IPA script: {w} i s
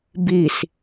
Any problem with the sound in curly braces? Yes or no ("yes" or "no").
yes